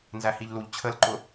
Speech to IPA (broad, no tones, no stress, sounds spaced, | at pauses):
n z æ h i ʎ l u ʎ t͡ɕʰ ə l ǃ ʊ